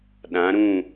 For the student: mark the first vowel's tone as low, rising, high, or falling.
rising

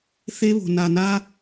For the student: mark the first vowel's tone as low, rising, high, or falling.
high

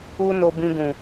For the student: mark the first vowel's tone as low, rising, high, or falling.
high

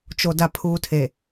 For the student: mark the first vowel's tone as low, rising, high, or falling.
low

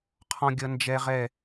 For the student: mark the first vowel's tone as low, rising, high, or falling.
high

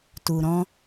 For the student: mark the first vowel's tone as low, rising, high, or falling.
low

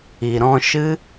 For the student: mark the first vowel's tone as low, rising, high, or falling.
low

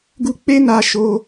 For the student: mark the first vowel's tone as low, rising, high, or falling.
high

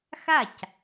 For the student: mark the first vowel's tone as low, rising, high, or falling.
falling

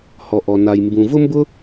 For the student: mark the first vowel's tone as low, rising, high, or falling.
low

